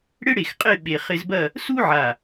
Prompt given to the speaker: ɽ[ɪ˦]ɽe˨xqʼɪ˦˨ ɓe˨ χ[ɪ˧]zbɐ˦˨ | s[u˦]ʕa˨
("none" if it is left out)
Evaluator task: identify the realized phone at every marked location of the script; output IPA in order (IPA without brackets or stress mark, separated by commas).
ɪ˦, ɪ˧, u˦